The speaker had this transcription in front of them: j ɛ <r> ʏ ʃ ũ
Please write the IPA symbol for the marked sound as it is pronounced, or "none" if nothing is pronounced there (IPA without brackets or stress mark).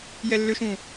lː